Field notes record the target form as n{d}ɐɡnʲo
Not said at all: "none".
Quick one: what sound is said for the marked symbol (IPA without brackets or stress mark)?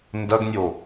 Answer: d